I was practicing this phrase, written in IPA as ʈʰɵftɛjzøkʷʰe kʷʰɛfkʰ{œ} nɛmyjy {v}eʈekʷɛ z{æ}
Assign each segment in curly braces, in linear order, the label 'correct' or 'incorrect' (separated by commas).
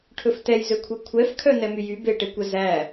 correct, incorrect, correct